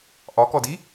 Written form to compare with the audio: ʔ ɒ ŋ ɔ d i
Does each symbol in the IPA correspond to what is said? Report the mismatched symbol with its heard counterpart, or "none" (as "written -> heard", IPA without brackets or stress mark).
ŋ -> k